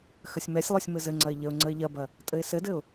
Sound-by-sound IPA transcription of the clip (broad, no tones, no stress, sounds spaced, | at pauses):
x ə sʲ m ɛ sʲ lˠ o sʲ m ɘ z ɘ ŋ͡ǀ ɐ ɪ̯ ʎ ə ʊ̯ ŋ͡ǀ ə ɪ̯ ʎ ɐ b ɐ | tʼ ɘ ɪ̯ s ɘ d ɘ ʊ̯